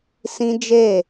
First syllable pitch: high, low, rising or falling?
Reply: high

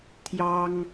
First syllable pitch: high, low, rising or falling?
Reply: high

